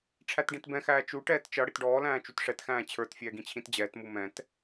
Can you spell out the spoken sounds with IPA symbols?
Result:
ʈ͡ʂʰ æ t ɖ ĩ t b ɛ̃ x æː t͡ʃ u ʈ ɛː t t͡ʃ ʌ ɽ ɪ t ɖ ɔː l æ̃ː t͡ʃ u t ʂ ɛ t x æ̃ː t͡ɕʰ ə˞ t fʲ ɛː ɡ ĩ t͡ɕʰ ĩ t d͡ʑ ɛː t m u m ɛ̃ t

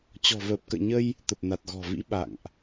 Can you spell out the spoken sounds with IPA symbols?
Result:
t͡ɕ ɔ̤˨˩ v əː˨˩ p̚ k ə̰ː˧˨ ɲ ə˧ j | t̪ ə˨˩ p̚ n a˨˩ t̚ ɣ ɔ̤˨˩ v ḭ˧˥ ɓ a̰˧˨ ŋ ʔ

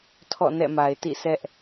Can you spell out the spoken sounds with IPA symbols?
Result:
tʰ ɔ̰˦˨ n ɛ̰˦˨ m a˨ ɪ̯ t ḭ˦˨ sʰ ɛ˦ ʔ

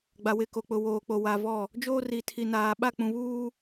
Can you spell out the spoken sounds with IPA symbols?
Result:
ɡ͡b a˨ w ɪ˦˨ k o˨ k͡p ʊ˨ w oː˨ k͡p o˨ w a˨ v ɔ˦˨ | d͡ʒ oː˦ r i˨ tʰ i˨ n aː˨ ɓ a˦˨ k͡p ũ˨ β uː˦

